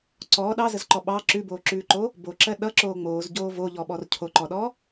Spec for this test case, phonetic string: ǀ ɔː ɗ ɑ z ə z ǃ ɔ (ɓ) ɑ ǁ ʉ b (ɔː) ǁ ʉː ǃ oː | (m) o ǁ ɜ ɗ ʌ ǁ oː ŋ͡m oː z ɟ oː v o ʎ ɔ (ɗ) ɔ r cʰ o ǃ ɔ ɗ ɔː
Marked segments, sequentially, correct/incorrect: correct, incorrect, incorrect, incorrect

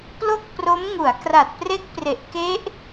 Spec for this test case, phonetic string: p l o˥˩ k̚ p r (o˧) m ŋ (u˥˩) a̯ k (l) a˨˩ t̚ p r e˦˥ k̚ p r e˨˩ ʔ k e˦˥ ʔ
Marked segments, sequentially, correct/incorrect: incorrect, incorrect, incorrect

